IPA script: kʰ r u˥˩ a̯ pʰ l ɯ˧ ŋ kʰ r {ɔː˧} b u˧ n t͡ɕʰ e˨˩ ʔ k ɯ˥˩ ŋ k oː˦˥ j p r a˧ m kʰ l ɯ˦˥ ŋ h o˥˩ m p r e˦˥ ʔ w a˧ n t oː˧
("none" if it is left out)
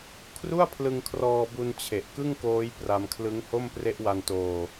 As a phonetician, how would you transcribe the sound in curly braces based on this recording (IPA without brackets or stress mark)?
ɔː˧